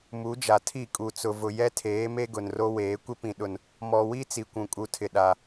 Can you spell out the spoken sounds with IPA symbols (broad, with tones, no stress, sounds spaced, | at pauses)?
m u˨˦ d͡ʒ a˨ tʰ i˦˨ kʼ u˨ t͡s ʊ˨ v ʊ˨ j ɛ˦ tʰ eː˨˦ m e˦ ɡ ʊ˨ n r o˦ w eː˨˦ kʷ ɪ˦ p ĩ˨ ɗ ʊ˨ n | m ɔ˨ w i˦ t͡s i˨ kʷ ũ˨ kʼ u˨ tʰ ɪ˨ ɗ a˨